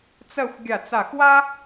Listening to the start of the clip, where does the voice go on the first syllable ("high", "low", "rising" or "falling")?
falling